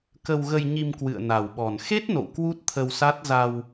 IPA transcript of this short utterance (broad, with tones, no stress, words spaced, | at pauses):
kə˧wɣə˧jɲi˧m kwɨ̰˧˨ə̯na˨˩wɓɔ˨˩n xe˦˥t̚no̰˧˨w kwu˦˥t̚t̪ʰə˧wsa˦˥t̚ za˧w